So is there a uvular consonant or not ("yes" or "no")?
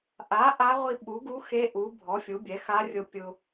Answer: yes